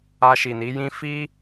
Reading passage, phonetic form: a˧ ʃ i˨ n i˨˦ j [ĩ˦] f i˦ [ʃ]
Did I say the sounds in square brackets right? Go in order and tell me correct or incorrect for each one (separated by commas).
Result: correct, incorrect